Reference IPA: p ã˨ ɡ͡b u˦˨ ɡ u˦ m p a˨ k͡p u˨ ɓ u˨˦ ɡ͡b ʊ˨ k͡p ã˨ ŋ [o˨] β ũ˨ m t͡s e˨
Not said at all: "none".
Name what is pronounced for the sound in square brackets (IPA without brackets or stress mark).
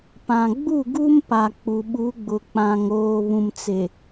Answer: oː˨